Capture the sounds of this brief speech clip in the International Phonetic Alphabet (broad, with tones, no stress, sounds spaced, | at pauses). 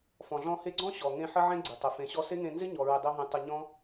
f ɔ̃˨ ɮ ɔ̃˧ h e˧ ɡ͡ǀ ɔ̃˦ ɕ ɔ˨ ŋ ẽ˧ ħ ə˦ ʕ ẽ˦ ɡ͡ǀ ɪ˨ tˤ ə˨ f ẽ˨ ɕ ɔ˧ s e˦ ŋ ẽ˧ n z ɪ˦ ɲ ɔ˨ ɹ ɪ˧ dˤ e˦ ɦ ẽ˧ tˤ ə˧ ɲ ɔ̃˦